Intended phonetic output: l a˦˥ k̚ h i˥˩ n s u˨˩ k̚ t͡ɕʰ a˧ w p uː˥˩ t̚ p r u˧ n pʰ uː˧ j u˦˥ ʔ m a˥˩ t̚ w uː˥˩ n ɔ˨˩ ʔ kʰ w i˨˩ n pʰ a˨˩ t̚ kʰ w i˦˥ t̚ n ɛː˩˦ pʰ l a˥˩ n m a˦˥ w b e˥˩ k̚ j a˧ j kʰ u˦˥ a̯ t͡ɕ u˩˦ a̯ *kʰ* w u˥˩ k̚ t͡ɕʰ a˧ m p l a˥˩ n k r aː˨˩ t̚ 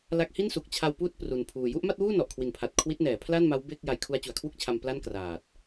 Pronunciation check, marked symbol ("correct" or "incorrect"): correct